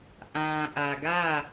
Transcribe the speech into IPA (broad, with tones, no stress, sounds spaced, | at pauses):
ʔ ã˨ ʔ ä˨ ɡ ä˦˨